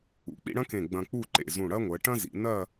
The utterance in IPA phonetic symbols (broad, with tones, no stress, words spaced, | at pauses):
ṵ˩˧k͡pḭ˥˧ɽɐ̃˥kẽ˧˩ ɡ͡bɐ̃˧k͡pu˥˧ǃḛ˧˩ zũ˧˩ɽɐ˥ŋʷɜ˩˧ ʈɐ̃˥ zḭ˩˧nɐ˥˧